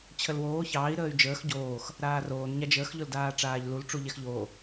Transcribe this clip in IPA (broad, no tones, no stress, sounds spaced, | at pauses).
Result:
t͡ɕʰ ə l w oː ç ɑː i̯ ɾ əː y̯ d͡ʒ əː x ɟ oː x | ɾ aː r oː n ɲ a d͡ʒ əː x ʎ ʊ l d aː ʈ͡ʂ aː ʎ l u l ʈ͡ʂ u ʎ ɛ x ʎ oː